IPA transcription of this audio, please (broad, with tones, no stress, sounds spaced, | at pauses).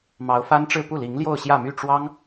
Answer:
m ɑ˧˥ ʊ̯ f a˥ n ʈ͡ʂ ɻ̩˥˧ p u˥˩ l i˧˥ ŋ l j o˥˧ ʊ̯ ɕ j ä˥˧ m y˥˩ ʈ͡ʂ w ɑ˥ ŋ